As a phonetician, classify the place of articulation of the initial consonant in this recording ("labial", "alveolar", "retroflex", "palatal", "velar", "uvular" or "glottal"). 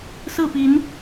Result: alveolar